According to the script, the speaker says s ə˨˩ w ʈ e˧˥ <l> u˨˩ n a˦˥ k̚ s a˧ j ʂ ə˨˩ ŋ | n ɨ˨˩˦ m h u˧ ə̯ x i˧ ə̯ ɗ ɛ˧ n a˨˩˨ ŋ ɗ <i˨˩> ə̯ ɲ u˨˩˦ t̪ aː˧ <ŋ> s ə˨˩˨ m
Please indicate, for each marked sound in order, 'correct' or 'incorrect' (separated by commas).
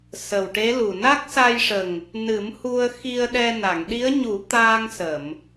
correct, incorrect, correct